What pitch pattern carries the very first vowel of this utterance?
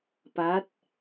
rising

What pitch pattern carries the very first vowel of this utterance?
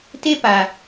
high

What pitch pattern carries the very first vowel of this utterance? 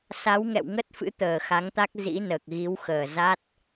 rising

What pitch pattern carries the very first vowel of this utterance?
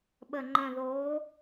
low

